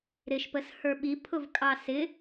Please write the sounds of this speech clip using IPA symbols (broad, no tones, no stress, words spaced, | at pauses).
ɾɪʃpəshə˞ ɓipʰʊvkʼɑ sɪ